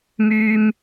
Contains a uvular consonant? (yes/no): no